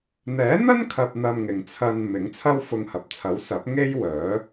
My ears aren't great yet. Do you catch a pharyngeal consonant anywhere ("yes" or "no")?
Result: no